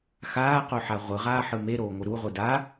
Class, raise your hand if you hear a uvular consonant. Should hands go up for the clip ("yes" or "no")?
yes